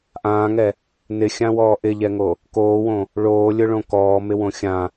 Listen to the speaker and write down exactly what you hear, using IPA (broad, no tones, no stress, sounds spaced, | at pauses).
ʔ ãː ŋ ɛ | n ɪ xʲ ã w ɔː ʔ ɪ ʎ ɛ ŋ o | k oː w õ | ɭ oː lʲ ʊ ɭ õ k ɔː m ɪ w õ xʲ ã